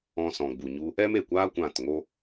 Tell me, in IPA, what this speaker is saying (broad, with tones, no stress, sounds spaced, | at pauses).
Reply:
ɔ̃˧ s ɔ̃˨ ɡ͡b u˨ ɲ u˧ | ɛ˦ m e˨ kʷ aː˦ kʷ ã˦˨ t ŋ o˦